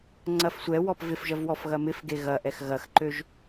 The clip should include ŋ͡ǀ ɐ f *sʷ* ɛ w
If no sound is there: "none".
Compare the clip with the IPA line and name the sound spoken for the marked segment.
sʷ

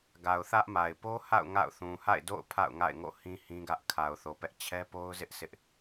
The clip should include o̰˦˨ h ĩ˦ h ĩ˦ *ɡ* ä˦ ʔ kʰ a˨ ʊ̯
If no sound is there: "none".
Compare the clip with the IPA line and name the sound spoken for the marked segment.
ɡ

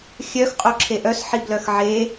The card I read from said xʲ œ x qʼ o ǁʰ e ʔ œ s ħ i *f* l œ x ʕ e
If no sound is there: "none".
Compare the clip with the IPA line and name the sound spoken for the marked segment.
b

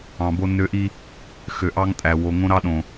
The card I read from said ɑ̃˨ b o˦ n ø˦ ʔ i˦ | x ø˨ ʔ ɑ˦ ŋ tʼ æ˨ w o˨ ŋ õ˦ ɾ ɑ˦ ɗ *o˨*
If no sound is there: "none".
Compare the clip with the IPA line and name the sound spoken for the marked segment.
õ˨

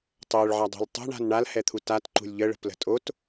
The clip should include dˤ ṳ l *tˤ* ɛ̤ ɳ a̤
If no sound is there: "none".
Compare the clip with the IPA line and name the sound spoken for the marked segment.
tˤ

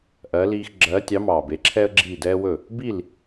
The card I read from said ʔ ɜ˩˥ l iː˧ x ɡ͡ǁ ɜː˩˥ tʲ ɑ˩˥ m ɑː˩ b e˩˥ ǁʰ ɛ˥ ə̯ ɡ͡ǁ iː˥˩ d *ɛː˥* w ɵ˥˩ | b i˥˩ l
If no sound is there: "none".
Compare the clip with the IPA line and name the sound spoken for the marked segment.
ɛː˥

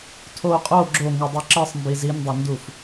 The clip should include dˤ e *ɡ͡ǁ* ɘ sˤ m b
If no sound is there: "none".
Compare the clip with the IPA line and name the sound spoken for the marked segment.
ǁ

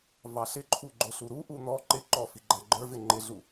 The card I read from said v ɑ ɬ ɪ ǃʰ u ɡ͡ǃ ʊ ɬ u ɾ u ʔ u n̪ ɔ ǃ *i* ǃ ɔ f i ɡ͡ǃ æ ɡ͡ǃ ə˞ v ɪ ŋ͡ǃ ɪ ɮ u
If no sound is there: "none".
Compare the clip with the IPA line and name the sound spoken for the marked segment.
ɪ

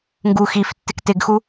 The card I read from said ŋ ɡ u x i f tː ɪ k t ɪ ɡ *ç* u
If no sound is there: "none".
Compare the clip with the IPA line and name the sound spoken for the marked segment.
x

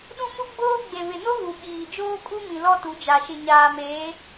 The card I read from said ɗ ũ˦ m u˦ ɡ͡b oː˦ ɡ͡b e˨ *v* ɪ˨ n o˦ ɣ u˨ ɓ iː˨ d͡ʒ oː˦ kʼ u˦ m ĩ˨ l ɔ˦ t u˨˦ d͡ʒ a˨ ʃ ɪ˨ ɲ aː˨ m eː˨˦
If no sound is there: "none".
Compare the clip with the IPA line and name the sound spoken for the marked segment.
β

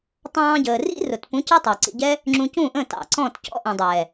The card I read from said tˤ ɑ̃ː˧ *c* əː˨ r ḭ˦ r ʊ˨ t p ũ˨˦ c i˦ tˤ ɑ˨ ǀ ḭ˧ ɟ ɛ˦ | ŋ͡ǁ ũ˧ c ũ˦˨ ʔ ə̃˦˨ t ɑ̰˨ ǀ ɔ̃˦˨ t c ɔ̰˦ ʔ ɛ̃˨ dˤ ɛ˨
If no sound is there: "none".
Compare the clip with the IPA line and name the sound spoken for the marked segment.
ɟ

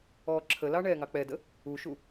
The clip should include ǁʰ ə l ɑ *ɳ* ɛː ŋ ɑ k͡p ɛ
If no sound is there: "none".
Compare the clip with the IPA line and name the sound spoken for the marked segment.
ɳ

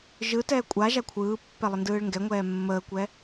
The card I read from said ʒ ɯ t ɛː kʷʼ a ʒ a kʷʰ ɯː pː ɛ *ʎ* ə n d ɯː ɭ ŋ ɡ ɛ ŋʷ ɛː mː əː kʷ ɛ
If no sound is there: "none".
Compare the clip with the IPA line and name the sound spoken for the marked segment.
lˠ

